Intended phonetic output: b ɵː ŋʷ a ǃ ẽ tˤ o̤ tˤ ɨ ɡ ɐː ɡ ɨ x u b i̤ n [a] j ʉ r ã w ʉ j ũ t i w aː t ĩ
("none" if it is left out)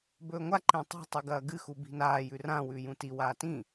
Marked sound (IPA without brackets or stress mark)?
aː